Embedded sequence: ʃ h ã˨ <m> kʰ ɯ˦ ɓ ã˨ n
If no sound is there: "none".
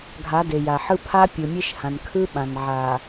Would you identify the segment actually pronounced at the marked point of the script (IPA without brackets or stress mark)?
n